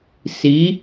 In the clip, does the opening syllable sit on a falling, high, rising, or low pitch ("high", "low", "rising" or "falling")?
rising